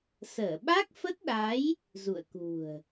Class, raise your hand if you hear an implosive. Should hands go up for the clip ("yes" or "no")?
yes